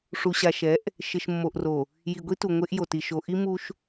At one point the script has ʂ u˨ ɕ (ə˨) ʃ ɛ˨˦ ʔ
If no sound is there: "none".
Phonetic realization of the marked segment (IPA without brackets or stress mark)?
a˨